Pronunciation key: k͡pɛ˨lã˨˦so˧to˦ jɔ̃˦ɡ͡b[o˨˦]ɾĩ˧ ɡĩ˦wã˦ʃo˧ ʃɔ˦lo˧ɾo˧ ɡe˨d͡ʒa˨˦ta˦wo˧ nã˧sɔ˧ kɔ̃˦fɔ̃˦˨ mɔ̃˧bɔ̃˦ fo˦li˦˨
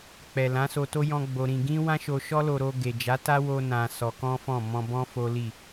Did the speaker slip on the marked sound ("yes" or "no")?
yes